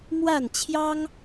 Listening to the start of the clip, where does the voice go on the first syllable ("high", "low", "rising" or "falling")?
falling